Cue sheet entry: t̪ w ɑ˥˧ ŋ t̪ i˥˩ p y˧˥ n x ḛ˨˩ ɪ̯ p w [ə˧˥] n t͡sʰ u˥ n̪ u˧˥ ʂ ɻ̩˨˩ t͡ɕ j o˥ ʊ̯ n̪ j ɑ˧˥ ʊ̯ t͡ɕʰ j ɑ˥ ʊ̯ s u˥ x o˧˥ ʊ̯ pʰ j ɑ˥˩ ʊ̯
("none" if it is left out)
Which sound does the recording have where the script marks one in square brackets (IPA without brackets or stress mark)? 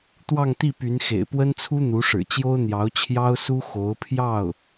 ə˥